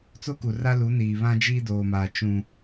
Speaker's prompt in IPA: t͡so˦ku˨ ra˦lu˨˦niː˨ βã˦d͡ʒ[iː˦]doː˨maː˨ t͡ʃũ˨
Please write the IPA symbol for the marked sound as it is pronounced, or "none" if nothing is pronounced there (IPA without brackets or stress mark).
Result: iː˦